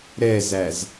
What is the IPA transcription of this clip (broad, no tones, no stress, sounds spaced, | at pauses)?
ɾ ɛ z æ z